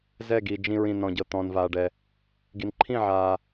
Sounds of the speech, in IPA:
z ɛ˥˩ ɡ i˨ d͡ʒ ĩ˨ ɹ ĩ˨ n ɔ̃˨ ɟ ɤ˨ t̪ ɔ̃ː˨ n v aː˨ ɖ ɛ˨ | ɡ i˨ n ǃʰ ĩ˥˩ ʕ aː˨

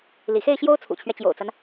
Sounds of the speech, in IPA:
l ḭ˨˩ x e˥˩ ɪ̯ ɕ j o˥ ʊ̯ t͡sʰ ṵ˨˩ t͡ɕʰ ɥ ɛ˦ t͡ɕ j o̰˨˩ ʊ̯ t͡s a˦ n

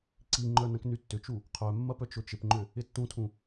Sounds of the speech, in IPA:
ǀ i ŋ͡ǃ œ n ɐ̃ k n y tː ʏ t͡ʃ u | qʰ œ mː ɐ p œ t͡ʃ ʊ t͡ʃ ɪ p ŋ͡ǃ ʏ | ɪ tː ũ tʰ ũ

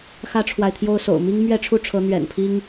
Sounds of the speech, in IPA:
x ä˦ ʈ͡ʂʰ w a˨ ɪ̯ t̪ʰ j o˦ ʊ̯ s o̰˨˩ ʊ̯ m i˦ ŋ m ɥ ɛ˥˨ ʈ͡ʂʰ u˥˨ ʈ͡ʂʰ ɤ˨˦ n̪ ɥ ɛ̰˨˩ n pʰ i˦ ŋ

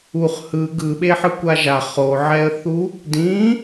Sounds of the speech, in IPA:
u χ h ɯ ɡ ɯ ɓ e ħ ɯ kʷ a ʒ a χ o ʕ ɛ ə̯ θ u | d ĩ

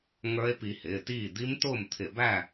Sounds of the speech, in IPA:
ŋ ə˞˦˥ e̯ p i˧ h ɪː˩˧˩ t iː˥˨ d̪ i˦˥ m t ʊː˥˨ m t̪ʰ ɪ˧˩˧ b æ˥˨

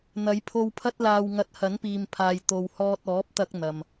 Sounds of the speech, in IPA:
n̪ ɐ˨˧ j pʰ o˧ w pʰ ɐ˥ t̚ l aː˧ w ŋ ɐ˧ t̚ h ɐ˨˥ n p iː˨ m pʰ aː˨ j t̪ o˨ w h ɔː˧ t̚ ɔː˨˥ p̚ t̪ ɐ˧ k̚ n̪ ɐ˨ m

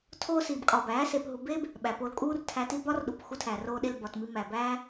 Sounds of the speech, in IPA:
tʰ oː˦ s iː˨ b kʼ ɒː˨ b æː˨˦ s eː˧ p ɦ u˧ b eː˦ b | ɓ æ˨ p o˧ l kʼ uː˦ r tʰ æ˧ t i˦ b ɒ˦ r ɗ u˨ p x u˧ tʰ æ˨ r oː˧ ɗ e˧ l b ɒ˨ t m i˧ m æ˨ b æː˦

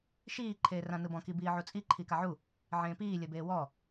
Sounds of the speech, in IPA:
ʃ iː ǃʰ eː r ã n ɯ b ɔ̃ k i b iː ʕ u t͡sʼ i ǃʰ i k a ʕ u | ʕ ẽː p iː lʲ ɜ b eː w ɔ

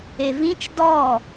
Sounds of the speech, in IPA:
e v ĩ t͡ʃ d ɔ

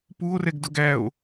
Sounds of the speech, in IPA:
p u o̯ r ɛ ɡ d ʊ ɡ æ o̯

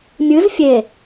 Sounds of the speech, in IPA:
mʲ ɨ z fʲ e

